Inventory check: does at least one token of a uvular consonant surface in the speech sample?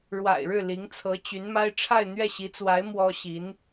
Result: no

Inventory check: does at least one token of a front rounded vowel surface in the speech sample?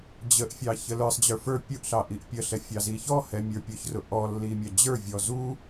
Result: no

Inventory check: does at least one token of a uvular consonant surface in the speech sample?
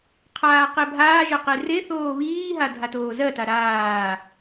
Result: yes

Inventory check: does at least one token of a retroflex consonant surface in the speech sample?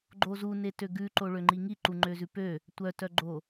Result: yes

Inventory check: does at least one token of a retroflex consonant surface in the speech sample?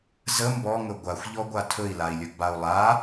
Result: no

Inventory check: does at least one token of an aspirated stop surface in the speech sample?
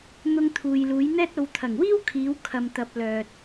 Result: yes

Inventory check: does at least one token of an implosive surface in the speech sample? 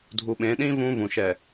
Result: yes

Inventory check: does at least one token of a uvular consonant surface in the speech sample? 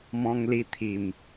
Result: no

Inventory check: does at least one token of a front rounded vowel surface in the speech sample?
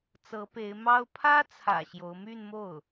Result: yes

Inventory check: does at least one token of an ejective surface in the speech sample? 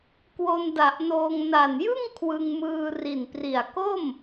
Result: no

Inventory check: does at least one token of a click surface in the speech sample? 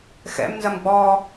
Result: no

